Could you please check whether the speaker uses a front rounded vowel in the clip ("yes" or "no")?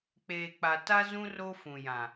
no